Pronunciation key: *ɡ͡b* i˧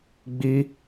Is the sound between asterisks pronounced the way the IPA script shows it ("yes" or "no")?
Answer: yes